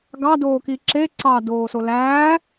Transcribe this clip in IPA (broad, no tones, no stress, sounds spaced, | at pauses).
ɡ ɑ d oː k i ǁ e ǀ ɑ d oː s o l æː